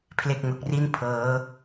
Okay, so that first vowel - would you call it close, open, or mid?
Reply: mid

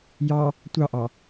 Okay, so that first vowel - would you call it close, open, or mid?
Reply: open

